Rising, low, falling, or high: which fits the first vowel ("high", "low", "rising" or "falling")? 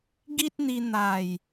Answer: high